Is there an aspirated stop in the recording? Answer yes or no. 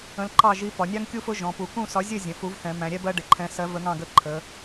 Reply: yes